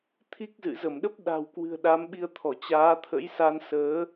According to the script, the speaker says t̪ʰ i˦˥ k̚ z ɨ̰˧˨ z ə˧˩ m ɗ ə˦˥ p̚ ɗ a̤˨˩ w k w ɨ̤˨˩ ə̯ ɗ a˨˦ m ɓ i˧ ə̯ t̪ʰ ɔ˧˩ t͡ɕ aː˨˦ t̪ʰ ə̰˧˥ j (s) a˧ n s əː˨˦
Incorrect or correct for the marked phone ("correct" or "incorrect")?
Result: correct